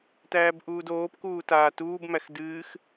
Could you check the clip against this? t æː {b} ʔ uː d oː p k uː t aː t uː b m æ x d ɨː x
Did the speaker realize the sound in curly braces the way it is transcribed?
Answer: yes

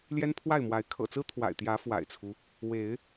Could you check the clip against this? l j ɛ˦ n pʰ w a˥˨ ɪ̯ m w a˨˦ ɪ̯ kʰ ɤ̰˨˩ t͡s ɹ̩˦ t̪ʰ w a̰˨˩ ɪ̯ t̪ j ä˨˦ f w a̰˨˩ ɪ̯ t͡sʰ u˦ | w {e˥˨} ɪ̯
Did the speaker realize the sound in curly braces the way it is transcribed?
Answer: no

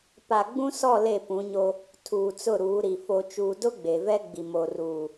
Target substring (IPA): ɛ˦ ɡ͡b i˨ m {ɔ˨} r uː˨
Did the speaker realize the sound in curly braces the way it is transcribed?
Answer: no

